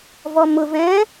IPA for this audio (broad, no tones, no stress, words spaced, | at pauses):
vɔmʊvɛ̃ː